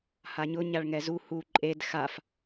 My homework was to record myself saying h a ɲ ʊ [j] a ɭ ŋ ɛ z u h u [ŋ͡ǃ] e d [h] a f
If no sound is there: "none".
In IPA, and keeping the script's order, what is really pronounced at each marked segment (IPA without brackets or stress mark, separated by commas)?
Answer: ɲ, ǃʼ, x